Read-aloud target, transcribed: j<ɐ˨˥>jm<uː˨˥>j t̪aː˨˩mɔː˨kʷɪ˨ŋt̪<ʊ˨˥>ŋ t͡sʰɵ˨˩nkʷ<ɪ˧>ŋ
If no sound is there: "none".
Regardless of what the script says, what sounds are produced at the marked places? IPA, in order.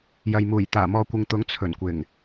ɐ˨, uː˨˩, ʊ˨˥, ɪ˨˩

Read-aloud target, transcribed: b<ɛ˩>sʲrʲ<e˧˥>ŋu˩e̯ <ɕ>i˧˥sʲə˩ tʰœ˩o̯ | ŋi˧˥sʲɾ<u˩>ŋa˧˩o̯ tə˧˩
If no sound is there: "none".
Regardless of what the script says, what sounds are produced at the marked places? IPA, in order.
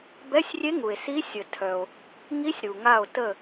ɛ˧˥˧, e˧˥, s, u˩

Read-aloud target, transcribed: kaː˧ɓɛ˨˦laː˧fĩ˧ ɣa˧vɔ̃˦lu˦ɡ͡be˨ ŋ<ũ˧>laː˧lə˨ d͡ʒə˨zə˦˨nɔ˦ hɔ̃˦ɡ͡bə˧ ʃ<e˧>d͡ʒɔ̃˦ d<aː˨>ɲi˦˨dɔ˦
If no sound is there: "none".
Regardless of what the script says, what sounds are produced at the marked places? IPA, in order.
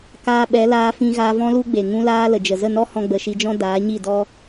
ũ˧, i˧, aː˨˦

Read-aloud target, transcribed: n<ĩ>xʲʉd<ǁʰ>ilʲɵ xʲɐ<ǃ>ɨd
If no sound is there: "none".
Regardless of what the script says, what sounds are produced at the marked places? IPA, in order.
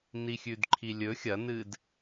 i, ǃʰ, n

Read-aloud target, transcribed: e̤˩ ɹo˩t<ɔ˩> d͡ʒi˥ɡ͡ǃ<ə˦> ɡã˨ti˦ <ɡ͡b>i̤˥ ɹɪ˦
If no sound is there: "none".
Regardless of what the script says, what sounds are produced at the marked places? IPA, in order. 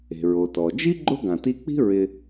ɔ˩, ʊ˦, k͡p

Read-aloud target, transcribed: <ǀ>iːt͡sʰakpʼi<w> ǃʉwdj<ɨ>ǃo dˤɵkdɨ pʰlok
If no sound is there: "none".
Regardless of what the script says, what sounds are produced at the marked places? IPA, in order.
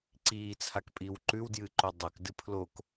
ǀ, w, ɨ

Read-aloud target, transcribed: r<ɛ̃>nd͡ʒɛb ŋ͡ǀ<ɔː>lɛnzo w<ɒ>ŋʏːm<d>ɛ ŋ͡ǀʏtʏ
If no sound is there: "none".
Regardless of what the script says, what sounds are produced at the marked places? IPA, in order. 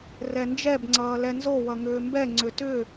ɛ, ʌː, ʌ, b

